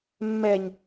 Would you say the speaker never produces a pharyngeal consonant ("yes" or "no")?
yes